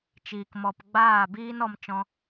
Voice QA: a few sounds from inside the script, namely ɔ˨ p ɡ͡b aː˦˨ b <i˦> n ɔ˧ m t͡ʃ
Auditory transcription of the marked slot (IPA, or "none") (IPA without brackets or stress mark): iː˦